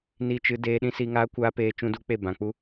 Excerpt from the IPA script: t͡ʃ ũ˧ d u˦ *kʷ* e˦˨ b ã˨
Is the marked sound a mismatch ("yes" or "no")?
yes